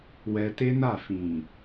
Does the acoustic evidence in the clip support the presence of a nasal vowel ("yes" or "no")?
yes